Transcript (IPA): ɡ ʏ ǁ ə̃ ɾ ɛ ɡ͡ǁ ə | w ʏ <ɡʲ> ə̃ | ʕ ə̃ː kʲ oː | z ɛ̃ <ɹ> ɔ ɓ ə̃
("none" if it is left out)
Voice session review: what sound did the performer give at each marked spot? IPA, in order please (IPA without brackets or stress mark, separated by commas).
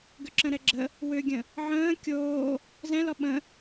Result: ɡʲ, l